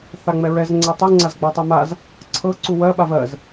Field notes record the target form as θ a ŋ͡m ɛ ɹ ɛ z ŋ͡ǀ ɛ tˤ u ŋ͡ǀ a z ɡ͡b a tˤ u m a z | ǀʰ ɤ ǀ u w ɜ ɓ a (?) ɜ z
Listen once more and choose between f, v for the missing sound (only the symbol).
v